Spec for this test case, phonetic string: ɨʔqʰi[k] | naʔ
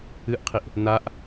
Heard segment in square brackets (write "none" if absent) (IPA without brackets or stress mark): ʔ